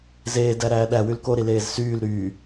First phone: z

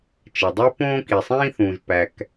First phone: t͡ʃ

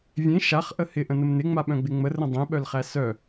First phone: vʲ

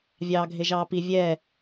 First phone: vʲ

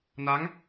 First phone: n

